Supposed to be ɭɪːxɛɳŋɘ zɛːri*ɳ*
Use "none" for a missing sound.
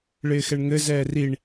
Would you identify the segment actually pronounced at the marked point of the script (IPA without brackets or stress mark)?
ɳ